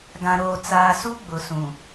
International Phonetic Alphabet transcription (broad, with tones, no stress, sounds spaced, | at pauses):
ɡ ã˨ ɾ oː˨ t͡s aː˨ s u˦ ɡ͡b ʊ˨ s ũ˨